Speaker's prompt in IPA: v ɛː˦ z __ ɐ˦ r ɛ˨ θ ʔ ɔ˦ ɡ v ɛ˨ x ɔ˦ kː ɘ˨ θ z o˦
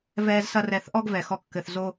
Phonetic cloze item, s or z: s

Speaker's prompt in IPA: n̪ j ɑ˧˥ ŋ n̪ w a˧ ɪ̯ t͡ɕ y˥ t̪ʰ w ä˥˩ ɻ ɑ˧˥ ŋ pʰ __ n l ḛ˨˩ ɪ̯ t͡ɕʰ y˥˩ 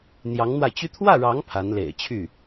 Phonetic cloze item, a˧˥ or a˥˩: a˧˥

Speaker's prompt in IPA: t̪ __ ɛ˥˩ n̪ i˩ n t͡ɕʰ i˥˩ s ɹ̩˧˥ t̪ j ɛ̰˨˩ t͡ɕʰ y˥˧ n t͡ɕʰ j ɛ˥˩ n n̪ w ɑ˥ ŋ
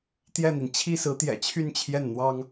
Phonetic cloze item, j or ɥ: j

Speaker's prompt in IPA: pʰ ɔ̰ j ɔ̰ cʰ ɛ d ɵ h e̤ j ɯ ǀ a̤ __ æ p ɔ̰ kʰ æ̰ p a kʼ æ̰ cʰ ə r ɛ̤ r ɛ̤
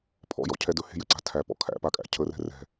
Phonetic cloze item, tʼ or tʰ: tʰ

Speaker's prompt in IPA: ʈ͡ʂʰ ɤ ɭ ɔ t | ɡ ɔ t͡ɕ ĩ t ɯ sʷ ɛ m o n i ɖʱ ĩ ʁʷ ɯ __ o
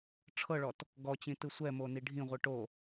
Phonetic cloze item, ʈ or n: ʈ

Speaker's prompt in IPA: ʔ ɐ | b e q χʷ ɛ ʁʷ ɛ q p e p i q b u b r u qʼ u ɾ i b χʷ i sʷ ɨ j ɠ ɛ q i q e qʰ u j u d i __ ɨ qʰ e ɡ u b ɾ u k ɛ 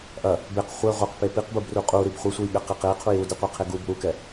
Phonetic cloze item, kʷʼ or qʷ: qʷ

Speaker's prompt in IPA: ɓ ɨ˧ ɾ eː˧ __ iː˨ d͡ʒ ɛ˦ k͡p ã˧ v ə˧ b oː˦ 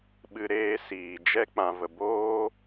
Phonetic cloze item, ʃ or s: s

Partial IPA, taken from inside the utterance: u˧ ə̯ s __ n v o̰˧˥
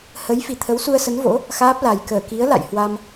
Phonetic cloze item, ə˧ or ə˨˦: ə˨˦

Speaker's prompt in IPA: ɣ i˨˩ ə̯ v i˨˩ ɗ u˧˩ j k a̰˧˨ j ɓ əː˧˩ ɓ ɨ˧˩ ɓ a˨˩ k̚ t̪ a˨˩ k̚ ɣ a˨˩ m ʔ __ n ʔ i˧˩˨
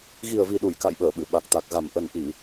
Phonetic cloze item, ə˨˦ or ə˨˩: ə˨˩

